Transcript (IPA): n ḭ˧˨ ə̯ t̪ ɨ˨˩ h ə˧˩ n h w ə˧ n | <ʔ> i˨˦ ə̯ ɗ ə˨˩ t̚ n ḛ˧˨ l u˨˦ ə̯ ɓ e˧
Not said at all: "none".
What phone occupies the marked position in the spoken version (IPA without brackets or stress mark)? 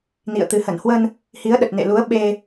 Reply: h